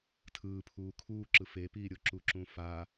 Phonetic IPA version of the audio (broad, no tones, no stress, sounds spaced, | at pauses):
tʰ ɯː pʰ uː kʰ uː ǁ ɯ f e p iː ɾʲ o ǁ u ǁ ũ f a